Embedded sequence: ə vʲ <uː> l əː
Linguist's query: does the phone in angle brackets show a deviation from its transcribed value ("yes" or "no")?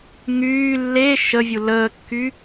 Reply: yes